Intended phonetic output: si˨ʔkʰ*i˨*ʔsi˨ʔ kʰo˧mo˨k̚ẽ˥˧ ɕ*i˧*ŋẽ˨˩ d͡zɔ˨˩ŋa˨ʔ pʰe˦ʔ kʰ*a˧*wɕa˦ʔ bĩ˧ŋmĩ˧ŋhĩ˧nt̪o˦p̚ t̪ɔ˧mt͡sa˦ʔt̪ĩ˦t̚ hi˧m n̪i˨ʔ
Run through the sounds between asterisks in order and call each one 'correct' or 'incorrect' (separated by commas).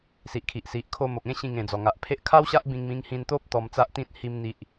correct, incorrect, incorrect